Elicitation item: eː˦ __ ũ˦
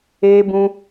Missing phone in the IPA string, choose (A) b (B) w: A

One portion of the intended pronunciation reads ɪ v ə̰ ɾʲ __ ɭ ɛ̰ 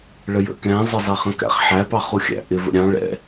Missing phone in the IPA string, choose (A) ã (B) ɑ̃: B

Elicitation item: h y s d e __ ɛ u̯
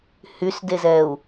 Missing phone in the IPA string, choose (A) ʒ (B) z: B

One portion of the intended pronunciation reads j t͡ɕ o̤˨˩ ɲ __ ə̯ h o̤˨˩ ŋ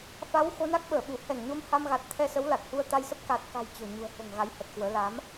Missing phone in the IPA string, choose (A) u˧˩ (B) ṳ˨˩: B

